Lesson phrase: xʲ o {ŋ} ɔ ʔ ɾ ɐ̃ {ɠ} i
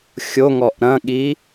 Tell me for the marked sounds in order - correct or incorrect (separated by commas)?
correct, correct